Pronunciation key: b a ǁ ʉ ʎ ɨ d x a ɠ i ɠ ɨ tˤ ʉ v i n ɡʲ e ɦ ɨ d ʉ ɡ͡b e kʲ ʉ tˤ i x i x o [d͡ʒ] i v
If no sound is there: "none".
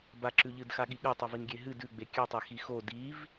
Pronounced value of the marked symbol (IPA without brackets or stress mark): d